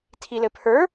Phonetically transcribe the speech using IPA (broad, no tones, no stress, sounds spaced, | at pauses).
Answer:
tʰ i l ɘ pʰ ə˞